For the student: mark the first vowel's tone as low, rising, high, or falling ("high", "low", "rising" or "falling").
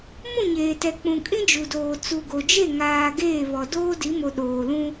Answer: falling